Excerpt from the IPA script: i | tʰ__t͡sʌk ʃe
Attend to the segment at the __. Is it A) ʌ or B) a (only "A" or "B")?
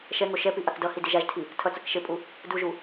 A